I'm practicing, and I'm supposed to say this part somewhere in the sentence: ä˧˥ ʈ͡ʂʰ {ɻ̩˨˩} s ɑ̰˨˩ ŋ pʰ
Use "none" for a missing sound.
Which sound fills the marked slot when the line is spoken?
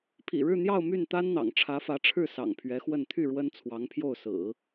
ɻ̩˥˩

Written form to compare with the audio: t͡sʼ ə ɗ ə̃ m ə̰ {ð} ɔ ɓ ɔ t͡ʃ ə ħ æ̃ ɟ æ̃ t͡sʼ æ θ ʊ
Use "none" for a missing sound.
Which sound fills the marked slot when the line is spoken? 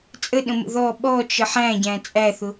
ð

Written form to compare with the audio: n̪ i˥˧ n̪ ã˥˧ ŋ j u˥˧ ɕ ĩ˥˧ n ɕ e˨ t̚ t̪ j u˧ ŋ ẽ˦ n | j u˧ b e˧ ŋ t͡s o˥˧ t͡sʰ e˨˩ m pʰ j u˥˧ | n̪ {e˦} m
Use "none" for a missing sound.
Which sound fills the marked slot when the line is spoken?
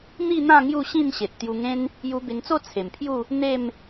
e˥˧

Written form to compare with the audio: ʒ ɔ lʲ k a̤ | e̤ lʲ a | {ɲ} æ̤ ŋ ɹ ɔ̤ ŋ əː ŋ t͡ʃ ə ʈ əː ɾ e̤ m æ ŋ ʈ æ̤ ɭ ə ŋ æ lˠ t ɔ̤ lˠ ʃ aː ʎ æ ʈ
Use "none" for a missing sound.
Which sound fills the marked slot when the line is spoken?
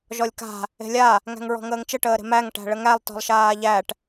ŋ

